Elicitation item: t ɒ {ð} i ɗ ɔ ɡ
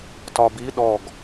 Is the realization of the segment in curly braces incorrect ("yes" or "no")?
yes